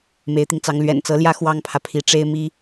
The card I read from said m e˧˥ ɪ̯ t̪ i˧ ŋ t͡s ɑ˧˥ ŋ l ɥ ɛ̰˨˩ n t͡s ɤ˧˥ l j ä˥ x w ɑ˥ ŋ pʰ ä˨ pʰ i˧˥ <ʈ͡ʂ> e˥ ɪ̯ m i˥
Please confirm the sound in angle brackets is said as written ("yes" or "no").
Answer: yes